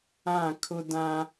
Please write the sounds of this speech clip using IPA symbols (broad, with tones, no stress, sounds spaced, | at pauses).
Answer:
ã˦˨ kʰ ʊ˦ d ã˦